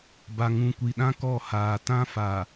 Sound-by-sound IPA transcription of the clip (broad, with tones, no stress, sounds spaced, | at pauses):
b a˨ ŋ ũ˨ kʷ i˨ ɗ ã˦ k ɔ˦˨ h aː˨ t ã˦ f a˨